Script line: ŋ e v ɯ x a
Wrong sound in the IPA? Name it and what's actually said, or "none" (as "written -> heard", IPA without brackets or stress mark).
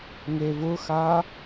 ɯ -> ʊ